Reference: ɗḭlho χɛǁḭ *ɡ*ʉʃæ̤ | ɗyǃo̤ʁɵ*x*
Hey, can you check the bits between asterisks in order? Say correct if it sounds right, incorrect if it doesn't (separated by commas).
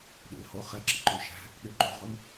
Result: incorrect, incorrect